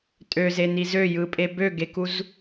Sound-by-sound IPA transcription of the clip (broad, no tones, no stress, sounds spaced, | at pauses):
tʼ ø z e n i z ø j ɯ pʼ e b ø ɡ e k u z